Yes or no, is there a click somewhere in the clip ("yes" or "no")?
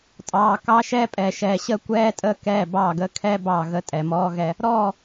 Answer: no